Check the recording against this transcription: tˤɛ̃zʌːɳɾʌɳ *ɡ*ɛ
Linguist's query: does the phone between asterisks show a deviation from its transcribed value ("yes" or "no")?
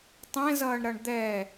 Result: yes